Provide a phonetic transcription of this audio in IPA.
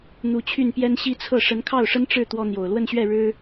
n̪ u˧˥ t͡ɕʰ y˥˩ n p j ɛ˥ n ɕ i˥ t͡sʰ ɤ˥˩ ʂ ə˧˥ n kʰ ɑ˥˩ ʊ̯ ʂ ə˥ n ʈ͡ʂ ɻ̩˥˩ t̪ w ɔ˥ n̪ j o˨˩ ʊ̯ l w ə˥˧ n ɕ ɥ ɛ˥˩ ɻ ɻ̩˥

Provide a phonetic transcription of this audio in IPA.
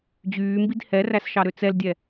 d͡ʑ yː m b i d h ɛ r æ s ʃ ɑ ɾ ø t͡s ɛ l dʲ ɛ

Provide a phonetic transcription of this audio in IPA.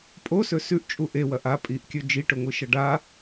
pʼ o s ɵ s ʉ ʔ t͡ʃʼ u ʔ e w ɐ ʔ a pʼ i ʔ kʲ ɵ d͡ʒ i ʈ ɵ ŋʷ ɨ ʃ ɐ ɖ a

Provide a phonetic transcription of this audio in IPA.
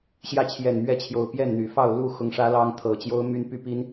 ɕ j ä˥˨ t͡ɕʰ j ɛ˨˩ n m ɥ ɛ˥˨ t͡ɕʰ j o˨˩ ʊ̯ p j ɛ˥˨ n n̪ y˨˩ f ɑ˥˨ ʊ̯ l u˥˨ x ʊ˨˦ ŋ ʂ ä˨˦ l ɑ˦ ŋ t̪ʰ ɤ˨˩ t͡ɕ j o˦ ʊ̯ m y˦ n p y˦ p i˦ n

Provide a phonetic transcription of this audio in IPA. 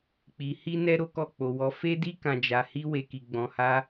k͡p i˧ h i˦ n ɛ˦ ɾ o˦ k ɔ˦˨ k͡p o˧ w ɔ˧ f e˦ d i˦ k ã˧ d͡ʒ a˧ h i˦ w e˦ k i˦ ɡ͡b ɔ̃˧ h a˦

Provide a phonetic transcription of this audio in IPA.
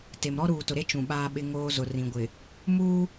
t e˨ m ɾ ɔ˦ ɾ uː˨ t ʊ˨ ɾ e˦ t͡ʃ ũ˨ ɓ aː˦ ɓ ɪ˦ ŋ oː˦ z ʊ˨ r ĩ˨ ɡʷ ɪ˨ | m uː˦

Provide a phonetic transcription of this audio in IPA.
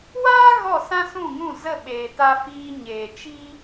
w aː˦ ɣ ɔ˦˨ s ã˦ s ũ˦˨ ŋ ũ˦˨ z ə˦˨ ɓ eː˨ t a˧ f iː˧ ɲ eː˨ t͡ʃ i˦

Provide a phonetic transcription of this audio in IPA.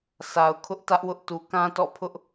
sʰ a˨ ʊ̯ kʰ ʊ˦ ʔ t ä˦ ʔ w ʊ˦ ʔ t u˨ k ã˦ t ɔ̰˦˨ pʰ ʊ˦ ʔ

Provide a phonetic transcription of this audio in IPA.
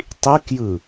tˤ i k j ɯ

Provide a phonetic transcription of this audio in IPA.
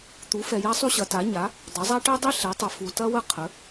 t̪ u˩˥ f ɛ˨ j a˥ sˤ u˥ ɕ ɐ˩˥ t a˩˥ ɲ a˩˥ | dˤ ɐ˩˥ zˤ a˥ ʈ ɛ˥ dˤ i˥ ɬ ɛ˩˥ tˤ ə˨ f u˨ t ɐ˥ w ə˥ qʰ ə˩˥

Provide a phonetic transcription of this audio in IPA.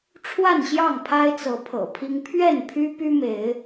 ʈ͡ʂʰ w a˥˨ n ɕ j ɑ˥˨ ŋ pʰ a˦ ɪ̯ t͡s ɤ˨˦ pʰ ɤ̰˨˩ pʰ i˦ ŋ pʰ ɥ ɛ˥˨ n pʰ y˦ p y˦ m e˨˦ ɪ̯

